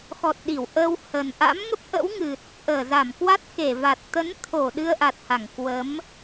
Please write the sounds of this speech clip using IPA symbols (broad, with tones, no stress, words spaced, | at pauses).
xɔ˨˩t̚ɗi˧˩w ʔə˧whə˨˩n ʔa̰˧˥mŋə˦˥p̚ ʔə̰˧˥wŋɨ˨˩t̚ | ʔəː˧˩za˧˩m kwa˦˥t̚xe˧˩va˨˩t̚ t̪ə˨˦nt̪ʰo˧˩ ɗɨ˧ə̯ʔa˨˩t̚ha˧˩ŋ kwə˨˦m